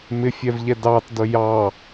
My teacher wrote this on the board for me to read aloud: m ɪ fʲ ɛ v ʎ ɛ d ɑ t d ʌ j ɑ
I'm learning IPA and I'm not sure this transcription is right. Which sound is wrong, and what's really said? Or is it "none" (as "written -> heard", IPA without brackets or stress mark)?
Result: none